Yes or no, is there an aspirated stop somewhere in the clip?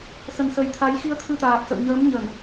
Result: yes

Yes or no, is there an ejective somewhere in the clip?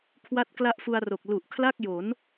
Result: no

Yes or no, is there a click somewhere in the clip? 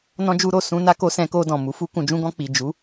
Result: no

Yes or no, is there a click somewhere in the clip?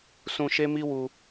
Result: no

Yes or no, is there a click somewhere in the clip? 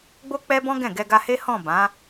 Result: no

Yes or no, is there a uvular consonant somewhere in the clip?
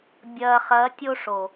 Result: yes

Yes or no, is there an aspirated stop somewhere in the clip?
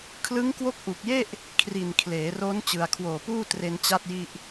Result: yes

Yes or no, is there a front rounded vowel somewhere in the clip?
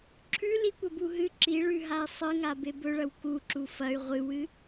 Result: yes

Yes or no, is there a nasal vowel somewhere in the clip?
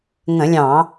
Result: yes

